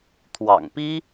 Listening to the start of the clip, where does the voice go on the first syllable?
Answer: low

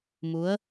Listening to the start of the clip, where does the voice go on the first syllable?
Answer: rising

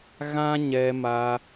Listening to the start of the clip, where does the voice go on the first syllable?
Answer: high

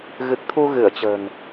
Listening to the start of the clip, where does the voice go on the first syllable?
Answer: low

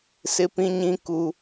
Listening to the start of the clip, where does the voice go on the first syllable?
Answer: high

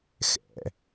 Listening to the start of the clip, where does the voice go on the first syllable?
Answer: rising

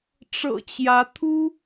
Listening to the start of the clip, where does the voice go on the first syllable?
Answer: low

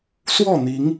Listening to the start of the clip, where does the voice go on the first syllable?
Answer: falling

